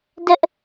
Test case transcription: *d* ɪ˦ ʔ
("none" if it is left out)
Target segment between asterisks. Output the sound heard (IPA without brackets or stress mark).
d